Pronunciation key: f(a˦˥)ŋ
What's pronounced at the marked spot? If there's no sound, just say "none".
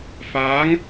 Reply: aː˦˥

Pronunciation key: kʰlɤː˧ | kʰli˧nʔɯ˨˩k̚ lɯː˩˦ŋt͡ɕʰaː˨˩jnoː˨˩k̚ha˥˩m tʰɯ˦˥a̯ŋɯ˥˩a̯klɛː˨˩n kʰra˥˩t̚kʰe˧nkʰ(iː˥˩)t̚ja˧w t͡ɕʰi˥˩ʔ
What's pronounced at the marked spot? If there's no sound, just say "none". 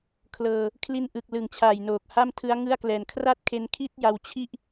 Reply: iː˥˩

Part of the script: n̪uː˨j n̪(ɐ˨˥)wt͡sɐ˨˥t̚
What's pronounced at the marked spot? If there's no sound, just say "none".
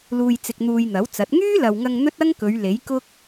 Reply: ɐ˨˥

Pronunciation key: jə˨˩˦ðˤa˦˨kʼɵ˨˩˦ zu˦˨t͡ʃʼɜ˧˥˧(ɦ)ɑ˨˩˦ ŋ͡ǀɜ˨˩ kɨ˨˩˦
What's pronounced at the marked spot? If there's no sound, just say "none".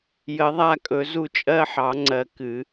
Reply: ħ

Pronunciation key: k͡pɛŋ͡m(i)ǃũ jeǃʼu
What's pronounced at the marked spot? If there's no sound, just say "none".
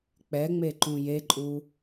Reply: e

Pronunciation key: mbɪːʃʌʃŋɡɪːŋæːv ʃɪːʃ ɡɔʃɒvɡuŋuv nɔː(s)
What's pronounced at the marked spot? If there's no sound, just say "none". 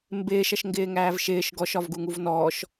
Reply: ʃ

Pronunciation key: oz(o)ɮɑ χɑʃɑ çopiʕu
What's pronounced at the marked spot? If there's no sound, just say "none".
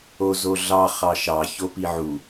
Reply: o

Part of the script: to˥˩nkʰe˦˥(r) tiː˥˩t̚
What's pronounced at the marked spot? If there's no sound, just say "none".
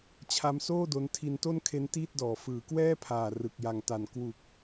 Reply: n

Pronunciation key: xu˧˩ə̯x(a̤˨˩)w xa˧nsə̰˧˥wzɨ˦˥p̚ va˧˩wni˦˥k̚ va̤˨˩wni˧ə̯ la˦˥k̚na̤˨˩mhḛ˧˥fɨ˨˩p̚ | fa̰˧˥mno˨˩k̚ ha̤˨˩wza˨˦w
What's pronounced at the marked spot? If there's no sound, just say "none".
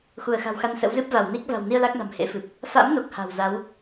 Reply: a̤˨˩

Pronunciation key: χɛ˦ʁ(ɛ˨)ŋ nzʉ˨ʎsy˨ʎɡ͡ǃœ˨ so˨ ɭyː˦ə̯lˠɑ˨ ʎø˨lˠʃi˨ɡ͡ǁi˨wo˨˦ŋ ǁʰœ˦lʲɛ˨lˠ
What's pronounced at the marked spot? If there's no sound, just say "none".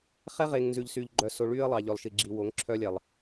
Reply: e˨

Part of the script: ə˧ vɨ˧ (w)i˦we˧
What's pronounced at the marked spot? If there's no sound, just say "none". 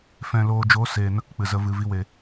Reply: v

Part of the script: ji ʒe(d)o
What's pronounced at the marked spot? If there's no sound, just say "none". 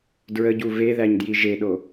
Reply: ɗ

